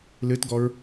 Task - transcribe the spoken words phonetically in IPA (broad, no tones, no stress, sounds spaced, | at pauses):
l ɨ t ɡ ɔ ɹ